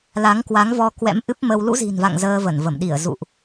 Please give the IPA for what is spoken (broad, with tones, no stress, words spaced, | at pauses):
la˨˦ŋkwa˨˦ŋvɔ˧ kwɛ̰˧˥m ʔɨ˦˥p̚mə˧w lṵ˧˥zi̤˨˩nva̰˧˨ŋ zəː˧və˧˩nvə˧˩m ɗi˧˩ə̯ zṵ˧˨ʔ